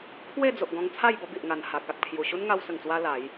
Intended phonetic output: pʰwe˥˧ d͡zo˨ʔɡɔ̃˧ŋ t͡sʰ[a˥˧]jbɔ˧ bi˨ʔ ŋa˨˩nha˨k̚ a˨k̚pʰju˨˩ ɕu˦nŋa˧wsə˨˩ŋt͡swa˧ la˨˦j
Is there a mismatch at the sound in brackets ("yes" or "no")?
no